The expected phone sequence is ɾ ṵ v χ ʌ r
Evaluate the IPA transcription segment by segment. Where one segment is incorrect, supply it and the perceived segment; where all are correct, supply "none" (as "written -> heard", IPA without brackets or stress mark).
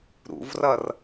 χ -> r